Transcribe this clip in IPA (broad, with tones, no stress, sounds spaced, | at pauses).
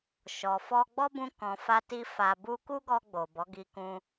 ʃ ɔ˨ f ɔ˧ ɡ͡b ɔ˦ b ũ˧ k ɔ̃˨ f a˧ t i˧ f a˨ b u˧ k u˦ ɡ ɔ˧ ɡ͡b o˨ b ɔ˨˦ ɡ i˧ k ũ˧